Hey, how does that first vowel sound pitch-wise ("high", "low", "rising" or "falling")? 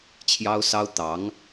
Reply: high